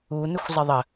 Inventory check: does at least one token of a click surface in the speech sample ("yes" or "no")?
no